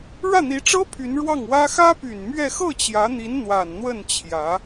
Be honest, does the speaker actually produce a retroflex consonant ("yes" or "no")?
yes